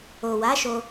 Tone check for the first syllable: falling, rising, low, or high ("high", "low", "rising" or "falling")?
low